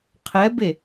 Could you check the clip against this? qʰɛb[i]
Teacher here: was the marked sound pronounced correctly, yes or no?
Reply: no